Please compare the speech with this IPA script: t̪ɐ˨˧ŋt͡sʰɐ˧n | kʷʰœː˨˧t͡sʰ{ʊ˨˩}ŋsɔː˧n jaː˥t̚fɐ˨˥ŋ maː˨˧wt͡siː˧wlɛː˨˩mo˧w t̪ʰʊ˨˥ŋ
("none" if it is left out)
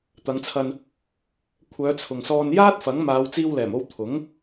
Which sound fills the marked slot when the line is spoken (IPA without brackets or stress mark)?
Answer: ʊ˨